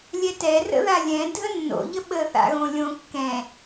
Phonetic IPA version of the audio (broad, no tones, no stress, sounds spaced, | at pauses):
lʲ ɛ t ɛ r ə̰ ð a lʲ ɛ̃ dʱ ə nː o̰ ʎ ə ɓ ə θ a̰ ɣ õ lʲ õ kː ɛ̃